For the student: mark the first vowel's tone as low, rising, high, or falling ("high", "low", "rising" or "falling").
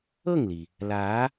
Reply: falling